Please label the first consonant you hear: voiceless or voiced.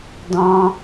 voiced